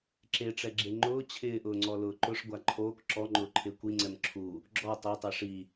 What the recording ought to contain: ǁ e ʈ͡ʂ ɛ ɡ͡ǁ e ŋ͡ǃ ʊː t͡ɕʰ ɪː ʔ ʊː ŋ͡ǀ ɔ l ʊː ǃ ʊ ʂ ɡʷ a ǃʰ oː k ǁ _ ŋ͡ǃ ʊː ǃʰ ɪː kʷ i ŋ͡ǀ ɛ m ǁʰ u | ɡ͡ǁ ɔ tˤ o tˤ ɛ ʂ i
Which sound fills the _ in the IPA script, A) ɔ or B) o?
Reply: A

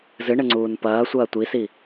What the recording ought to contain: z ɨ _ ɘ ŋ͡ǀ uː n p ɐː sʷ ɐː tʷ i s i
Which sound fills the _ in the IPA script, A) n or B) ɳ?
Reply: B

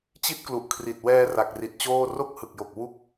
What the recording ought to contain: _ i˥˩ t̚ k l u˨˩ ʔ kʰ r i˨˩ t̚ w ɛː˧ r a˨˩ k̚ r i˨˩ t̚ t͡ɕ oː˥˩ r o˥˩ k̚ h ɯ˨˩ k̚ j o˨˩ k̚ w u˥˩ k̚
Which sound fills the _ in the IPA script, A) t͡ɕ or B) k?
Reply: A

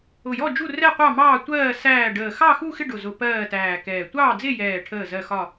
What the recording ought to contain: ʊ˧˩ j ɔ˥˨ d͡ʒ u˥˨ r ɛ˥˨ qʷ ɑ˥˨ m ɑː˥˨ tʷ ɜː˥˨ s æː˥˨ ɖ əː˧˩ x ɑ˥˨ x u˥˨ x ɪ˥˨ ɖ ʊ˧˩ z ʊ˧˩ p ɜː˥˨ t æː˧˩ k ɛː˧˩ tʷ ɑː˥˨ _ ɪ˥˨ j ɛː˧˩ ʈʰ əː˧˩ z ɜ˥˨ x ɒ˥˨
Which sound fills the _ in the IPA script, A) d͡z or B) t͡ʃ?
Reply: A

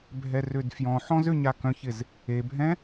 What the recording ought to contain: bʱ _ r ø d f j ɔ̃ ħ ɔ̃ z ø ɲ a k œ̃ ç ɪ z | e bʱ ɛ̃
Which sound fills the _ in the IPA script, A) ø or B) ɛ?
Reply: B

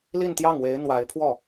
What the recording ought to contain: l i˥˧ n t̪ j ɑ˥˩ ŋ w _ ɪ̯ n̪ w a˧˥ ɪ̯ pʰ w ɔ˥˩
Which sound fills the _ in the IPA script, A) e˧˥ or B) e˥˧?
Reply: A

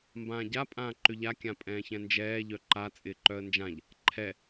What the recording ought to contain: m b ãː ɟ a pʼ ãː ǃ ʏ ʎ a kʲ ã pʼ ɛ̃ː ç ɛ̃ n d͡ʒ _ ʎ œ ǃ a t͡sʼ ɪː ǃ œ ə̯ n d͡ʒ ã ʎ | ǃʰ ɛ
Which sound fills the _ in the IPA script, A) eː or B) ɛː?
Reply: B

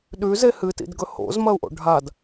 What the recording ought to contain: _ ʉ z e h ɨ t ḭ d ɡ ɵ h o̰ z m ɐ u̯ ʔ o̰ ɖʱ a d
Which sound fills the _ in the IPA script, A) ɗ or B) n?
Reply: A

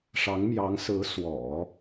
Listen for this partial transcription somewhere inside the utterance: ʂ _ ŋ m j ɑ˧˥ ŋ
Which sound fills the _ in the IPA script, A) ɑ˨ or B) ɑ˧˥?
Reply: B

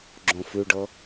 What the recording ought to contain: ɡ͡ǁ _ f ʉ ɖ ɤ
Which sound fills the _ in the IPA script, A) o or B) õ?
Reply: B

